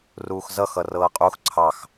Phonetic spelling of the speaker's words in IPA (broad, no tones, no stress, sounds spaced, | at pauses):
r uː x z ʌ x ʌ r ɤː qʼ u x ǀʰ ɑ x